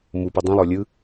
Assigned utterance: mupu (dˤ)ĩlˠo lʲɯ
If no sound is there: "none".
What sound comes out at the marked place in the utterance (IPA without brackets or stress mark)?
dˤ